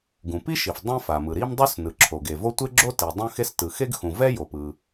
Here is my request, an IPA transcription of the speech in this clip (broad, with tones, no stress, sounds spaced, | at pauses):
ɡ ũ˩ p i˥ ʃ i˩ f dˤ ɛ̃˥ f a˩ m ɯ˩ ɾ i˥ m dˤ u˥ s n ɯ˩ ǁʰ o˩ ɡ e˩ v o˥ tʷ e˥ ɡ͡ǁ o˥ t i˩ dˤ ũ˥ x e˥ s t ɯ˩ x e˥ ɡ x ũ˩ v ɛ˥ j o˩ p ɯ˩